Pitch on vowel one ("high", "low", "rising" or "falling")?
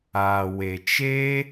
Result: low